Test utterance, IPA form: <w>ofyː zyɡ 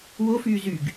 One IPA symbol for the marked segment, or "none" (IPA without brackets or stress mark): w